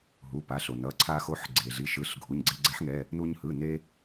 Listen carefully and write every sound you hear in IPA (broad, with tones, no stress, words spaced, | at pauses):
ɦu˩˧˩pa˩˧˩ɬo˩ nʌ˩˧˩ǀʰa˧xo˨˥ħ ɡ͡ǀe˩ɮi˩˧˩ʃɯ˩˧˩ɬ ɡʱu˩˧˩ɲɡ͡ǀe˧ɡ͡ǀɛ˨˥ħŋɛ˩˧˩ | nu˧ɲhɯ˩˧˩ ne˧